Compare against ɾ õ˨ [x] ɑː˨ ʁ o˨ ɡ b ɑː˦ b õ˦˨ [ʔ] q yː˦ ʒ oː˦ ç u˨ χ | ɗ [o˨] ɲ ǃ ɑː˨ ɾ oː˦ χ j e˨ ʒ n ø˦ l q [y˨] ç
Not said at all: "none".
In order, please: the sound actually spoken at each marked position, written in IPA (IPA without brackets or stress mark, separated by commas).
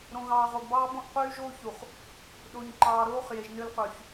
ɣ, ʔ, o˨, y˨